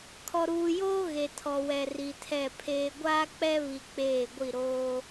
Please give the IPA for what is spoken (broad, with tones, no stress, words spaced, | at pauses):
kʰɔ˨ɾuː˨joː˦ ɣe˨tʰɔ˨wɛ˨ ri˨tʰɛ˦˨pʰeː˦ ɡʷaː˦k͡pɛ˦βi˨ k͡peː˦˨ɡʷi˦˨ ɾoː˦